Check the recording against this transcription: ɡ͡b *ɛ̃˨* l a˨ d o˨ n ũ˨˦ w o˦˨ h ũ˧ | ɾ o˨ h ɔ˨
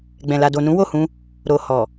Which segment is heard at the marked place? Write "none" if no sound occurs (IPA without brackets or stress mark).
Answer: ɛ̃˨